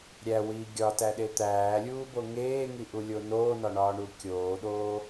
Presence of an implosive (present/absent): present